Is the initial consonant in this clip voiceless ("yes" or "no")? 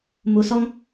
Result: no